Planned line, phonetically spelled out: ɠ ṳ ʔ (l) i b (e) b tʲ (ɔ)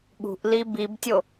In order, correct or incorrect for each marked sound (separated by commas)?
correct, incorrect, incorrect